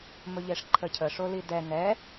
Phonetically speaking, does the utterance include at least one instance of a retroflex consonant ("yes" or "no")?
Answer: yes